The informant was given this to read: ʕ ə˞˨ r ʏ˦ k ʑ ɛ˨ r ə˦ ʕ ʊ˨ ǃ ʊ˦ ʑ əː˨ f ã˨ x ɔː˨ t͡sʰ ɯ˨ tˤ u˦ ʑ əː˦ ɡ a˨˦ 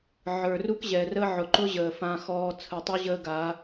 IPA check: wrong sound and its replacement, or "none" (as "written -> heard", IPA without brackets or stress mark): ʏ˦ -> u˦